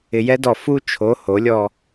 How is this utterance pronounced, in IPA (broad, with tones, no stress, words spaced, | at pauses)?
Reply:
ɪ˨jɛ˦dɔ˨ fu˦t͡ʃʰo˨˦ ho˨˦lʲɔ˦